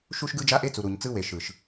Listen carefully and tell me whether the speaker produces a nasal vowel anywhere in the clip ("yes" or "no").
no